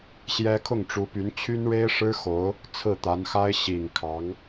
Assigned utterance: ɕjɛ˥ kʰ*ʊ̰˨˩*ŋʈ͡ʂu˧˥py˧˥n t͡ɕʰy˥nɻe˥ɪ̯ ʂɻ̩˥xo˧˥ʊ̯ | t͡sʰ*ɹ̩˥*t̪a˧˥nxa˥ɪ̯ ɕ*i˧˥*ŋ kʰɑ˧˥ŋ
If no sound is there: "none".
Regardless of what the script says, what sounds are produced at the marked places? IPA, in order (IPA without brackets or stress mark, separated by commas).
ʊ˥˩, ɹ̩˥˩, i˨˩